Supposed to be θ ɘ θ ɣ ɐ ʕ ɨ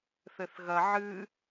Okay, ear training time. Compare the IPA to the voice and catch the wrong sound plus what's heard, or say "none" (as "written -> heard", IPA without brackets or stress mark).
none